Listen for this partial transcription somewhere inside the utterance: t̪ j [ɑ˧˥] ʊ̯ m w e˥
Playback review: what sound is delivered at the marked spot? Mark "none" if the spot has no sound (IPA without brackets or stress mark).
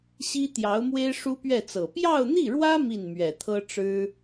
ɑ˧˥